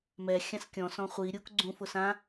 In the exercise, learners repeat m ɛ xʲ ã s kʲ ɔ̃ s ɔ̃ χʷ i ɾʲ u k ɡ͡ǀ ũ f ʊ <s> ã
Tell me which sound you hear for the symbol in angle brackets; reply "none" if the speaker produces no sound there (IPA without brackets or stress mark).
s